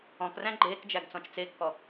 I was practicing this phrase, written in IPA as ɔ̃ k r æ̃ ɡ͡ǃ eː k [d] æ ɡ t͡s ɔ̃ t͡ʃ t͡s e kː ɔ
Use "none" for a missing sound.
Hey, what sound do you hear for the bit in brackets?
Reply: d͡ʒ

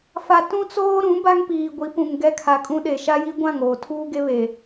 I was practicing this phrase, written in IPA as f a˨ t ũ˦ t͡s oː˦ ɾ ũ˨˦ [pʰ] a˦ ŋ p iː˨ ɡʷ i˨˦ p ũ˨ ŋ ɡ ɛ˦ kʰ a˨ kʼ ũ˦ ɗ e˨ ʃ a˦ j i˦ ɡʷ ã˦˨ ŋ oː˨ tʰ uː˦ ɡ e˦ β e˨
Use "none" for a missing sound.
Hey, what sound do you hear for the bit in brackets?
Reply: b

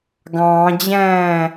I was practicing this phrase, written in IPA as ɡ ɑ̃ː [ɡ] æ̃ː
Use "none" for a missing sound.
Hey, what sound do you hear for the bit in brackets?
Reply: d͡ʑ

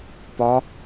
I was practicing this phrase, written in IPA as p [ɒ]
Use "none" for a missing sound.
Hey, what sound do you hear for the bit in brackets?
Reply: ɒ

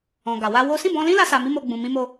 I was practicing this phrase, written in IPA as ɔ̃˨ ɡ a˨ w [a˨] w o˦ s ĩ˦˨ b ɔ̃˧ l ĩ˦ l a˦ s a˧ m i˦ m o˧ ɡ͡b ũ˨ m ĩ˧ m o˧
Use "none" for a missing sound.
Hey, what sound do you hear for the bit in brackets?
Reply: a˧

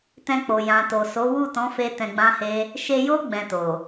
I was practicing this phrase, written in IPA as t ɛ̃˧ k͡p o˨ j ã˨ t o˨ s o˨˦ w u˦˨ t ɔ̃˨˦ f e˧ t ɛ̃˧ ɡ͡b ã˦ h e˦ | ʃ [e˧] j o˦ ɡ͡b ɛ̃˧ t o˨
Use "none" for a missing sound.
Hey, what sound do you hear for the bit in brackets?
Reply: e˧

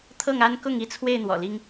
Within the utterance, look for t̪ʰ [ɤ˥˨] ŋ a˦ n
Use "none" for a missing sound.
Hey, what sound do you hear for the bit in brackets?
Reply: ɤ˥˨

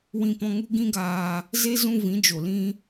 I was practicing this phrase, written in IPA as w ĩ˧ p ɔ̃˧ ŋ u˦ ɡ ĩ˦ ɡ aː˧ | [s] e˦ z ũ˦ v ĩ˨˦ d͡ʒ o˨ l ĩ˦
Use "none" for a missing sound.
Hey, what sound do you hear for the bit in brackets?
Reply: z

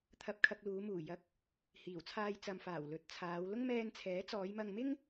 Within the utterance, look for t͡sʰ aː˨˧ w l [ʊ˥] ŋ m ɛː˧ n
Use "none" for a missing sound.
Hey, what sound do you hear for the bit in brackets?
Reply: ʊ˥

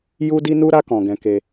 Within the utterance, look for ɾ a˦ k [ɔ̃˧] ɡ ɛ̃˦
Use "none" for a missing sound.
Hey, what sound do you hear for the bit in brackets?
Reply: ɔ̃˧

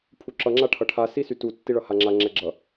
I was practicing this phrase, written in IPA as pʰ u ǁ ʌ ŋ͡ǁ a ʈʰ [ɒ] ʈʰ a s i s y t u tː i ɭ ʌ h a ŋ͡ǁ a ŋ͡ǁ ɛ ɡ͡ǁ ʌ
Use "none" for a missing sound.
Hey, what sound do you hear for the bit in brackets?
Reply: ʌ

